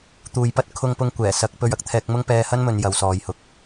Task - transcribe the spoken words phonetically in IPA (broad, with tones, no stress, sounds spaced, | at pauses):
t̪ uː˨ j p ɐ˥ t̚ kʰ ʊ˧ ŋ p ʊ˧ ŋ kʷ ɛː˨˩ s ɐ˨˥ k̚ p ɵ˧ ɥ ɐ˨ k̚ t̪ʰ ɛː˧ k̚ m ʊ˥ ŋ p ɛː˧ h ɐ˥ n m ɵ˨ n j ɐ˨ w s ɔː˨ j h ʊ˨˥ k̚